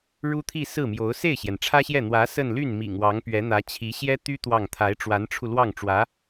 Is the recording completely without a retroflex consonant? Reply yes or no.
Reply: no